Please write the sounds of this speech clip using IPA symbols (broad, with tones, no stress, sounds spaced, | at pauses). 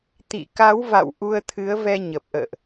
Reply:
t̪ ḭ˧˨ k a˨˦ w v a̰˧˨ w ʔ u˧ ə̯ t̪ʰ ɨ˨˦ ə̯ v ɛ˧ ɲ ə˨˩ p̚ ʔ ə̰ː˧˨ ʔ